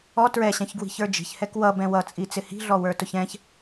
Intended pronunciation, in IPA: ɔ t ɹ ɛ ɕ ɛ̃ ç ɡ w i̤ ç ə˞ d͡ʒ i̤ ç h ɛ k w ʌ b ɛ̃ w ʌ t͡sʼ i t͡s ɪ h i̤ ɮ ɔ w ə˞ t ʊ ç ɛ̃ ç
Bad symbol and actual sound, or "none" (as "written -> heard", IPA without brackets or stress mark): none